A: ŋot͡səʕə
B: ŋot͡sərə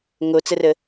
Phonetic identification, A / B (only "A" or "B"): B